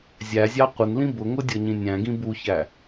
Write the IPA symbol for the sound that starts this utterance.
zʲ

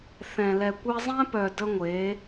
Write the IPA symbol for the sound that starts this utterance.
θ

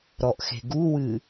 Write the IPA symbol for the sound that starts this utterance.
ɾ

